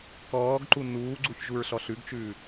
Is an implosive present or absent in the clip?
absent